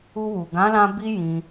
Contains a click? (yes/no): no